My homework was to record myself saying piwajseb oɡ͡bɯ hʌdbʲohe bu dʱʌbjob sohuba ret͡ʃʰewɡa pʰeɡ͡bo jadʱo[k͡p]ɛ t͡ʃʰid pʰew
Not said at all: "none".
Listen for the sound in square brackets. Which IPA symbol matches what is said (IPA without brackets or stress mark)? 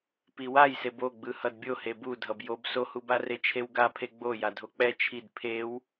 k͡p